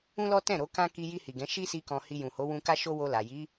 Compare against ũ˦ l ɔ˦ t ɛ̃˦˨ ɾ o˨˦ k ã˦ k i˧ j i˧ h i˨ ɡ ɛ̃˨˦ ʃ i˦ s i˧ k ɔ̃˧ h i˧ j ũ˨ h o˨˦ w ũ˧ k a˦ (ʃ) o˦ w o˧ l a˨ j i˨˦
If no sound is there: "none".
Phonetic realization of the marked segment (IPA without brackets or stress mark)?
ʃ